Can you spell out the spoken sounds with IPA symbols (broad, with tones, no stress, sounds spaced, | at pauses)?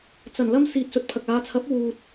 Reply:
t͡s ɐ˨˩ n l ɐ˧ m s iː˨ t̚ s ɵ˨ t̚ pʰ ɐ˨ k̚ aː˨˧ t͡sʰ ɐ˨˥ p̚ w uː˨ t̚